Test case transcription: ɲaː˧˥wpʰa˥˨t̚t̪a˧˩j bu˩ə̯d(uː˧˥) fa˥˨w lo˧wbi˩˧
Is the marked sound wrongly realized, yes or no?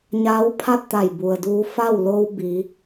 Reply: yes